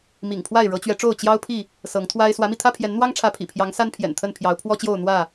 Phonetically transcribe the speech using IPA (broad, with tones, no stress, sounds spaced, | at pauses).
m ḭ˨˩ ŋ pʰ w a˥˨ ɪ̯ ɻ ɤ˨˦ t͡ɕ ɥ ɛ˨˦ ʈ͡ʂ o˥˨ ʊ̯ t͡ɕ j ɑ˦ ʊ̯ pʰ i˥˨ | s ɤ˨˦ ŋ t̪ʰ w a˦ ɪ̯ s w ä˨˦ m i˧ t̪ʰ ä˦ pʰ j ɛ˨˦ n n̪ w ɑ˦ ŋ ʈ͡ʂʰ ä˨˦ pʰ ḭ˨˩ pʰ j ɑ˨˦ ŋ s a˦ n pʰ j ɛ̰˨˩ n t̪ʰ ə˥˨ n pʰ j ɑ˨˦ ʊ̯ pʰ w ɔ˦ t͡ɕ j o˥˨ ʊ̯ n̪ w ä˥˨